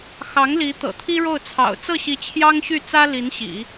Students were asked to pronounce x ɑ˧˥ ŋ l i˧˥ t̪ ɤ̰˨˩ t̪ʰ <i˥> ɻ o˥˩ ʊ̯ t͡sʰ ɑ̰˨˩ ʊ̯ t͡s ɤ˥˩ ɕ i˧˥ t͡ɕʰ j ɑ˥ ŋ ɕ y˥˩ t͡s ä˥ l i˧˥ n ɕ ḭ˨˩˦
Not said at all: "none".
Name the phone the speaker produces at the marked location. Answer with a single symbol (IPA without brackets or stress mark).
i˥